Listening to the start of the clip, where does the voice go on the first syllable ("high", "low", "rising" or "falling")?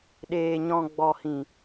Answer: low